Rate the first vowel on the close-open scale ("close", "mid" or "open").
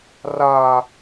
open